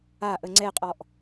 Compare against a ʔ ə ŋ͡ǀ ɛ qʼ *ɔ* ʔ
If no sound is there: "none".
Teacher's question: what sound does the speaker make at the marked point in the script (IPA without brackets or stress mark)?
ɔ